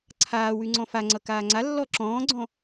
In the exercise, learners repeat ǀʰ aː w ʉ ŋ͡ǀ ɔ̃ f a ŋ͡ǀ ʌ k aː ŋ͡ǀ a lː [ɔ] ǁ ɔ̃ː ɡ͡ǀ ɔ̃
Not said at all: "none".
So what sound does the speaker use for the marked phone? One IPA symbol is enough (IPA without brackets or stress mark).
ɔ